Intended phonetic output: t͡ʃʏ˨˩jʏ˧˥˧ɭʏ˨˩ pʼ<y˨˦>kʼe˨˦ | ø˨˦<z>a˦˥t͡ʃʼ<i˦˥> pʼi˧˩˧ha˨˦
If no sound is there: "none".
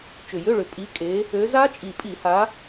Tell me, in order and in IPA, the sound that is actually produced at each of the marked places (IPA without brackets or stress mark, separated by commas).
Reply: i˨˦, z, i˨˩